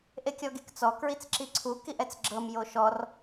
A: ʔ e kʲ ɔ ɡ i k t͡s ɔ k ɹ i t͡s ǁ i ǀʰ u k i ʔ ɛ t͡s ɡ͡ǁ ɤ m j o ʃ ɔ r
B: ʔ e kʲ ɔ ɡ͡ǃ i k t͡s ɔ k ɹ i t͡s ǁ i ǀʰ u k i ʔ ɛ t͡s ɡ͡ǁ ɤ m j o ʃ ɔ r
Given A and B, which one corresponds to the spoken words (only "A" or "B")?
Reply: A